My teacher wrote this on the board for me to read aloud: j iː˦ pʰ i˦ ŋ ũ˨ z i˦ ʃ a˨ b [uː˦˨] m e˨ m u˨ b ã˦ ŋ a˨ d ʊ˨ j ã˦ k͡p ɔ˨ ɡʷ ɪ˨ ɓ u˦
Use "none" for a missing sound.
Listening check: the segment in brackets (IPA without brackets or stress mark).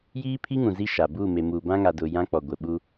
u˦˨